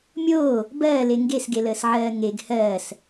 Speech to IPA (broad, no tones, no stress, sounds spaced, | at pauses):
mʲ oː | b ɜː l e ŋ ɡ e s ɡ e l əː s ʕ ɜː ŋ e ɡ h ɜː s